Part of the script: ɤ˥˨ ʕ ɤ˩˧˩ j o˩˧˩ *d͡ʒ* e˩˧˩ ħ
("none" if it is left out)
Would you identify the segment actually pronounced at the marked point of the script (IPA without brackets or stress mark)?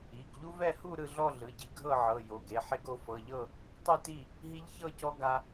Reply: ɡ